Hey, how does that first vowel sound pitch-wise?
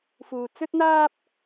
low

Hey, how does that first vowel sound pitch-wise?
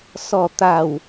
falling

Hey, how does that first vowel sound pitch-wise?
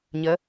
rising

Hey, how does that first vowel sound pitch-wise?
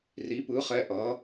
rising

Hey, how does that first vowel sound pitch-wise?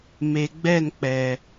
low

